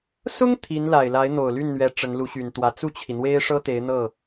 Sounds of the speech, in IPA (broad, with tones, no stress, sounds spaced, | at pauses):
s ʊ˥ ŋ t̪ʰ i˧˥ n l a˨˩ ɪ̯ l a˧˥ ɪ̯ n̪ o˨˩ ʊ̯ l y˥˩ n n̪ ɥ ɛ˧˥ ʈ͡ʂ ə˧˥ n l u˧˥ ɕ y˨˩ n t̪ w ä˧˥ t͡s u˥˩ t͡ɕʰ i˩ n̪ w e˥ ɪ̯ ʂ ɤ˥ t̪ e˧˥ ɪ̯ n̪ ɤ˥˩